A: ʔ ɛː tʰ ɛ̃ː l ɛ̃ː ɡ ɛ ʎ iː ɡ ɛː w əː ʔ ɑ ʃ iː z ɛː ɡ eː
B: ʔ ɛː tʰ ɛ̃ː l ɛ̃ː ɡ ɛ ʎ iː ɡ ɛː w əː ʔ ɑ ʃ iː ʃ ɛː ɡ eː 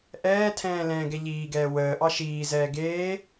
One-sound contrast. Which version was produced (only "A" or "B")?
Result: A